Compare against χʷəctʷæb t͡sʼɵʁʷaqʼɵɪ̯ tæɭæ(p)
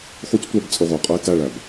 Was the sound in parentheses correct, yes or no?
no